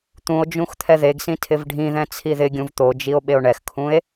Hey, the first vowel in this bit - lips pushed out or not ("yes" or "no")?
yes